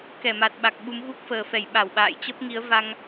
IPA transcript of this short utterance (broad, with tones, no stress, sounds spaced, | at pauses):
k ɛ˧˩ m a˨˩ t̚ ɓ a˨˩ k̚ ɓ u˨˦ m ɣ u˦˥ k̚ f əː˨˩ f ɛ˧˩ j ɓ a˧˩ w ɓ a̰ː˧˨ j t͡ɕ ə˦˥ p̚ ŋ i˨˦ ə̯ v a˧ ŋ